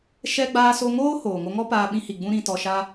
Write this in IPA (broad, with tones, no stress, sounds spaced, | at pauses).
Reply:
ʃ ɛ˦ ɡ͡b aː˧ s o˧ ŋ oː˦ h oː˨ ŋ o˧ ŋ ɔ˦ p aː˧ ɓ ĩ˧ h i˨ ɡ͡b ũ˦ ɾ ĩ˧ t ɔ˧ ʃ a˦